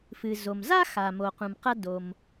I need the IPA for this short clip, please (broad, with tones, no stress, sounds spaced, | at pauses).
f ɨ˩ z o˩ m z a˥ x a˩ m o˩ q ũ˩ m q ɐ˥ d o˩ m